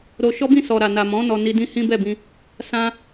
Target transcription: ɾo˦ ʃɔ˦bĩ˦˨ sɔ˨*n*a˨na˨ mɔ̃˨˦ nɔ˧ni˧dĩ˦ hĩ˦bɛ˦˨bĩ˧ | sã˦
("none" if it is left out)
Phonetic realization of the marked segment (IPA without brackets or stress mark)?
ɾ